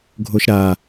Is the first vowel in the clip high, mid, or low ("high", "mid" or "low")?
mid